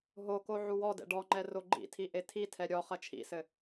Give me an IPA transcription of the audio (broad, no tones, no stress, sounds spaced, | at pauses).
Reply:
ɦ o k o ʕ u w ɔ d ɛ̰ ɖ ɔ ŋ͡ǃ ɛ r o ɡ͡ǃ ḭ tʰ i ʔ e tʰ i tʰ ɛ ɾʲ ɔ χ ɐ t͡ʃʰ ḭ s ɘ